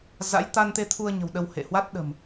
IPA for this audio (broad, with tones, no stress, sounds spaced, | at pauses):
z a̰˧˥ j t̪ a˧ n t̪ e˧ t̪ʰ u˧ ə̯ ɲ ə̤˨˩ w ɗ ə˧ w h ḛ˧˨ h w a˦˥ t̚ ɗ ə̤˨˩ m